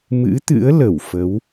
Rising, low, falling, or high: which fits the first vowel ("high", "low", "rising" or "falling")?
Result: rising